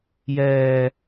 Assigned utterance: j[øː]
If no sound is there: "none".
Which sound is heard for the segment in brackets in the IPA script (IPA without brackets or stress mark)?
ɛː